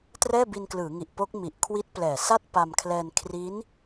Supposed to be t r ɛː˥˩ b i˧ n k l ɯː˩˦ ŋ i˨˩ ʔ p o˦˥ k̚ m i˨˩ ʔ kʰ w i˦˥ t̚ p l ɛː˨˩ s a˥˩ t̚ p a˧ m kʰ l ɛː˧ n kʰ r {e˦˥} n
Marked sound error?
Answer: yes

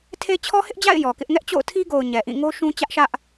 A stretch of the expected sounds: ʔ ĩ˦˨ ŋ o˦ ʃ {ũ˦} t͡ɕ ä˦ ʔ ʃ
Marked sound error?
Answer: no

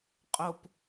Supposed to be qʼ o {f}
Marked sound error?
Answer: yes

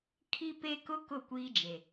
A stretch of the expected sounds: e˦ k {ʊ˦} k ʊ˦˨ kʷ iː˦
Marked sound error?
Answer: no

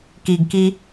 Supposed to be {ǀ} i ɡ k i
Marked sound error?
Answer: yes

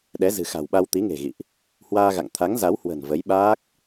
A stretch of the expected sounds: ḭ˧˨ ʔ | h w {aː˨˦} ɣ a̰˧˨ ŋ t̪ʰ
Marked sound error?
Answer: yes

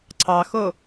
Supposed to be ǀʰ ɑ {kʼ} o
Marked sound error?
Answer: yes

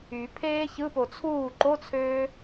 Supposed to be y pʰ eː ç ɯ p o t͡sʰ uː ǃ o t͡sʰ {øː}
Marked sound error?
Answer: no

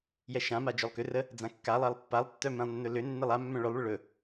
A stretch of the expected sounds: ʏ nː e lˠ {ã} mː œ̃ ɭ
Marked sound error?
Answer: yes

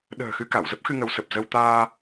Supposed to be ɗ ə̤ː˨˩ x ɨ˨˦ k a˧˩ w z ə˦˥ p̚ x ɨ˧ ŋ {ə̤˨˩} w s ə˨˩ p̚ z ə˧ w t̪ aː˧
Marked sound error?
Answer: yes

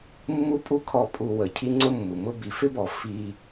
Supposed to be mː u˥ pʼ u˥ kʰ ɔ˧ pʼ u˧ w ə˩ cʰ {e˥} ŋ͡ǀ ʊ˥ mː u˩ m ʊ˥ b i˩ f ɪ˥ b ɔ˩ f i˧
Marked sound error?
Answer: yes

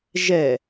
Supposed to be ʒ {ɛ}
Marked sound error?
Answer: no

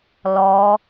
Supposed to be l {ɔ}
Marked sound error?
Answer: no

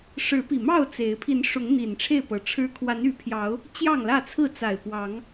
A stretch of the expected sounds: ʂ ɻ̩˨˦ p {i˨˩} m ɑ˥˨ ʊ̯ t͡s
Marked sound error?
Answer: no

